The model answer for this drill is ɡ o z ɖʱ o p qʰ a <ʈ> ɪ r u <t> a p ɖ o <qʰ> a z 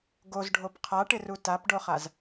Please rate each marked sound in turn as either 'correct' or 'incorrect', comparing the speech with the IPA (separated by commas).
correct, correct, incorrect